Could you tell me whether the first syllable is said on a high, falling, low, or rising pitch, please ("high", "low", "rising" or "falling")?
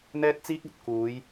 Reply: high